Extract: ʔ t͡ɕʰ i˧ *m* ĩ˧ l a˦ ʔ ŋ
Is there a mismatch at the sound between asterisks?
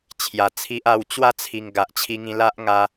yes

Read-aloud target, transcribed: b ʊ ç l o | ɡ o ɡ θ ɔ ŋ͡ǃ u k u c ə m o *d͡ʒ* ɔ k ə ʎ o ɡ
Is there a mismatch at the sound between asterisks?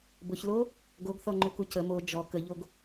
no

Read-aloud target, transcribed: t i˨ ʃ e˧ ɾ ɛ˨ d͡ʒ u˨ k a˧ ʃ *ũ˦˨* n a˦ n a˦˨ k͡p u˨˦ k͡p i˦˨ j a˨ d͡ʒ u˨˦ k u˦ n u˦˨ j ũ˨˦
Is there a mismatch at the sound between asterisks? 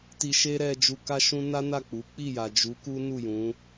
yes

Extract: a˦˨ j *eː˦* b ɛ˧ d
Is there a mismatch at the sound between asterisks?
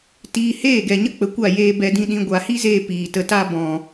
yes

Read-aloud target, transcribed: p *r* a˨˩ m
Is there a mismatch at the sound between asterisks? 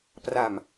no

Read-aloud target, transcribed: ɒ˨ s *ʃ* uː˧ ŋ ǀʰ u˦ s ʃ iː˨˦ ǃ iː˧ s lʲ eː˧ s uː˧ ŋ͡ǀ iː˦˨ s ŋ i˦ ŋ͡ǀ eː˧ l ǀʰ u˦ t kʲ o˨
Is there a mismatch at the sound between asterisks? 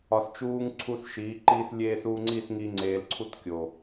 yes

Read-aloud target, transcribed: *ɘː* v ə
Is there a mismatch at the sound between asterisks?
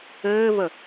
no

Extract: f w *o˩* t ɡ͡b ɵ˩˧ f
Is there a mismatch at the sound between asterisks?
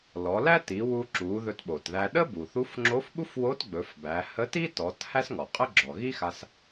yes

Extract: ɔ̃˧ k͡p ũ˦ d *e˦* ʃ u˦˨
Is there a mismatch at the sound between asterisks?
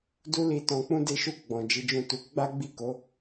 no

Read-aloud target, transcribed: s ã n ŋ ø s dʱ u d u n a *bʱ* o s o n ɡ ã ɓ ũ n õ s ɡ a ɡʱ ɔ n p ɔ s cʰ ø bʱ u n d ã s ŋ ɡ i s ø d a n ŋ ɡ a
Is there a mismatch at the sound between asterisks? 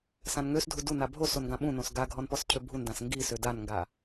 no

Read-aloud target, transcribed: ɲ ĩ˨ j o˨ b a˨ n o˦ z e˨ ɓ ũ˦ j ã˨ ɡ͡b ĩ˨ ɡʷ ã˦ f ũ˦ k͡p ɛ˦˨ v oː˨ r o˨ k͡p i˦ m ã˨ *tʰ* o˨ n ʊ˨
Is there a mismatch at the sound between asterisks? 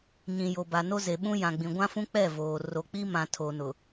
no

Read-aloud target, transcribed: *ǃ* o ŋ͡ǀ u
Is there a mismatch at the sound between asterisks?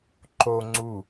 no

